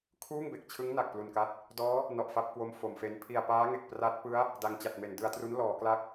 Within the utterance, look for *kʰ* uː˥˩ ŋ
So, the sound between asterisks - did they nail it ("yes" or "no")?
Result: yes